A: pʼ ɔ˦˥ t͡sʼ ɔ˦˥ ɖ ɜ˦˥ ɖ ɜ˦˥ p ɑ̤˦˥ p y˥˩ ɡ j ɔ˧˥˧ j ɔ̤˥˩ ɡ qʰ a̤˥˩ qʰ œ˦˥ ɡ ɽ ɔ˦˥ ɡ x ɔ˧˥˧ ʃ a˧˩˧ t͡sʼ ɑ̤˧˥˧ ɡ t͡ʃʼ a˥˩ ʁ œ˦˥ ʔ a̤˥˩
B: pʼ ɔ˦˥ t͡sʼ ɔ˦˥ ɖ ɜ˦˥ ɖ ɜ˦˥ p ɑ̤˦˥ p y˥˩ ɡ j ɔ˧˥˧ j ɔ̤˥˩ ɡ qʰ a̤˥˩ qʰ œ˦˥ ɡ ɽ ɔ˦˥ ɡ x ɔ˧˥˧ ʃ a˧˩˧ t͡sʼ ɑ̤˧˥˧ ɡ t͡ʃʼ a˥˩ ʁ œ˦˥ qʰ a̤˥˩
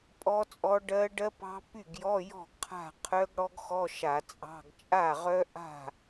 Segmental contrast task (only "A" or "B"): A